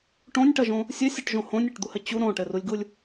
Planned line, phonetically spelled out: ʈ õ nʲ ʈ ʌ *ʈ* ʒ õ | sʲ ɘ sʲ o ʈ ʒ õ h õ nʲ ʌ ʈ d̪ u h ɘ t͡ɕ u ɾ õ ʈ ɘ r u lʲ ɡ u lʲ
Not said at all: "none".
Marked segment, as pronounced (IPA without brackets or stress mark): none